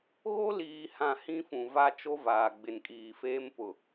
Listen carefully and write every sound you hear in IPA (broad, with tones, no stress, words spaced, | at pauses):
ɣo˦liː˨hã˨ hĩ˦fũ˨va˦ t͡ʃo˦vaː˨ɡ͡bɪ˨nkʼiː˨ feː˦mpʊ˨